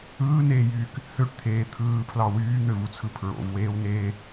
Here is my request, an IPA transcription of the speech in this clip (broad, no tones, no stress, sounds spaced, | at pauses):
ɯː n eː j yː k | h ø ʈ t̪ʰ eː t̪ʰ ɯː pʰ l ɑ w yː n̪ ø v u t͡sʰ ɯ pʰ ɹ o̰ v w eː w n eː